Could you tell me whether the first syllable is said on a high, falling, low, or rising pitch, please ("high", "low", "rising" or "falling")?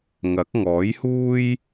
rising